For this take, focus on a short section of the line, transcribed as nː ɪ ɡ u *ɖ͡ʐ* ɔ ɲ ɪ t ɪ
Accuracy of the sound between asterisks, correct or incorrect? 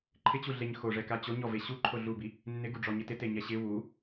correct